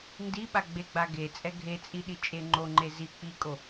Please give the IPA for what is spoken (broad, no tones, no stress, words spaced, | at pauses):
ndiɓa ɡ͡beɡ͡ba ɡet͡sʼɛ ɡʱet͡sʼiɗit͡ʃʼe ŋ͡ǃoŋ͡ǃe zi k͡pikʼo